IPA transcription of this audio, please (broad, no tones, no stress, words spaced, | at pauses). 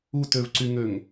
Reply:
utøvǀyŋøŋ